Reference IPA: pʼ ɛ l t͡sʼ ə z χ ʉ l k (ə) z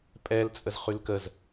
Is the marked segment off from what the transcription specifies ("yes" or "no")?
no